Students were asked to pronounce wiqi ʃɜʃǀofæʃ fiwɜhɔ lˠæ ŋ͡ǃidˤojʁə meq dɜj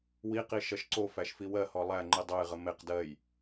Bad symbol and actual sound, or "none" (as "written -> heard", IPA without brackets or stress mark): none